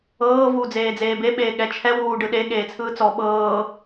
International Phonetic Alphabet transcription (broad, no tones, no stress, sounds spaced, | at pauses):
ɤː v uː d͡z eː d͡z eː b e ɓ eː ɠ ɛ t͡ʃʰ ɛ w uː ɖ ɯ ɗ e ɠ eː t͡sʰ ɯː t͡s ɔ ɓ ɤː